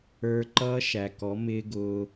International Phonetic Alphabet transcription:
ə˞˧ ǃ ʌː˦ ʃ æ˨ k ɔ˨˦ m ɪː˦ ɡ ʊː˧

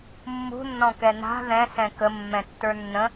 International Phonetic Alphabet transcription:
mː ṳ nː ɔ̃ k ɛ n a̤ ð ɛ̃ s ɛ̃ k ə mː ɛ̃ tː ə˞ nː ə̃

